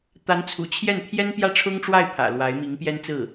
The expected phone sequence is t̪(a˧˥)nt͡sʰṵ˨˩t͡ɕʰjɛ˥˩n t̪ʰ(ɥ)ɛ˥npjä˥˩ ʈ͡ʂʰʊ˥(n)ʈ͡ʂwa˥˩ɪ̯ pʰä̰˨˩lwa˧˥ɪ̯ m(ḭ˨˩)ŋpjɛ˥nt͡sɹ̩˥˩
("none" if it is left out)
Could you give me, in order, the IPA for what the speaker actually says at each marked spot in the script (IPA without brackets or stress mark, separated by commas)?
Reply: a˧˥, j, ŋ, i˧˥